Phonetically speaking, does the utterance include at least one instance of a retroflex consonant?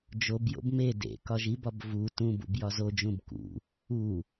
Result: no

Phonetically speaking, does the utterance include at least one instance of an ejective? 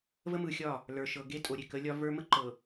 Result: yes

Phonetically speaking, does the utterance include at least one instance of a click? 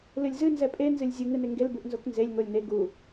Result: no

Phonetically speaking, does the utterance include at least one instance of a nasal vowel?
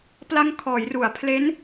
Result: no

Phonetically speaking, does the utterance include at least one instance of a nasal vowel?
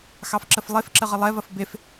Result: no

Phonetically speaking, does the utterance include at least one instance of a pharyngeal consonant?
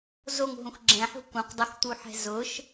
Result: yes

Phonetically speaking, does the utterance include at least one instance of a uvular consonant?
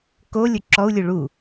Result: no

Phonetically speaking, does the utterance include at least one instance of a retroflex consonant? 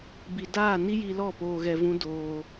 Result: no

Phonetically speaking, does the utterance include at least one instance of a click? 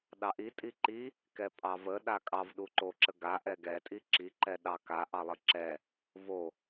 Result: yes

